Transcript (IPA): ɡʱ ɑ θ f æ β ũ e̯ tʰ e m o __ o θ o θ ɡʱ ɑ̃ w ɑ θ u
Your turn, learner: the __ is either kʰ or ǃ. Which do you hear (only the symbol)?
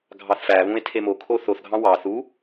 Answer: kʰ